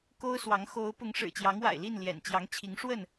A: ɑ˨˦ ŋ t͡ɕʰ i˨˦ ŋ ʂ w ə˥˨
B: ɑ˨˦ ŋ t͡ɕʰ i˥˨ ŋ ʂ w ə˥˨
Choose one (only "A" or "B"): A